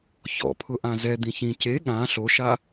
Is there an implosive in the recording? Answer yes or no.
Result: yes